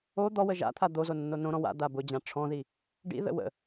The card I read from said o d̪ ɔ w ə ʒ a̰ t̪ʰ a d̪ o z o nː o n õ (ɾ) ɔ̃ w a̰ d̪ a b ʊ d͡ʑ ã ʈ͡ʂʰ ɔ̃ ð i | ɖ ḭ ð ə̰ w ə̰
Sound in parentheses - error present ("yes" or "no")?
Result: no